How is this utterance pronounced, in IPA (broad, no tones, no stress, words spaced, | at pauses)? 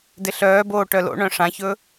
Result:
dɪɬœːboː ʈœlo̰ɳœ̃ ʂãçɵ